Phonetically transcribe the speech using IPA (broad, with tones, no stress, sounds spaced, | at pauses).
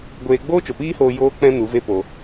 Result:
ɡʷ eː˧ ɡ͡b oː˦ t͡ʃ o˨ p iː˦ h oː˧ j oː˧ k͡p ɛ̃˧ n u˨˦ v e˦ p o˧